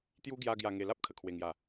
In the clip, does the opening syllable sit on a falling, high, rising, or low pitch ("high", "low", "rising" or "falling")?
high